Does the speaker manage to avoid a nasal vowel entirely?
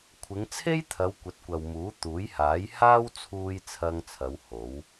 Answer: yes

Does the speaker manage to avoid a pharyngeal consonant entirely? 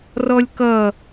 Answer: yes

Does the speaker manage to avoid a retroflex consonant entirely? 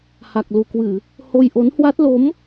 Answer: yes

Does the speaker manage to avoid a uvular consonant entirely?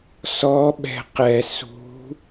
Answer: no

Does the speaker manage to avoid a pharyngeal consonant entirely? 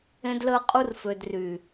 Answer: yes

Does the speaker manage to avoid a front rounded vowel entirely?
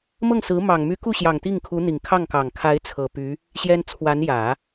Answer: no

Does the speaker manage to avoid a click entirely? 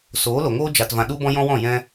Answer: yes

